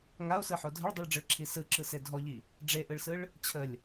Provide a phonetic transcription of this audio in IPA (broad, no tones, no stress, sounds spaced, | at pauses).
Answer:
ŋ a o̯ s ɯ ħ o dʱ ə ɭ dˤ i ɭ ɖ͡ʐ ɯ ɭ ǁʰ i s ɯ ǁ ɯ s e dʱ ɔ ʎ i | ɖ͡ʐ e ʔ ɯ ɭ s ɯ ɭ | t͡ɕʰ ə lʲ